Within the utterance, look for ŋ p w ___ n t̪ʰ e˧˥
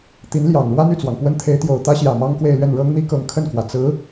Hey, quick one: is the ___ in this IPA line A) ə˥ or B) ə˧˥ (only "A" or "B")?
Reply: A